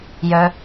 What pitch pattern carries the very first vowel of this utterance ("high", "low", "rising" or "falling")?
low